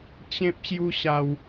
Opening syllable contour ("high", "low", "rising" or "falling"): high